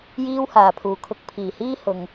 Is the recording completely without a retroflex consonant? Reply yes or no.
yes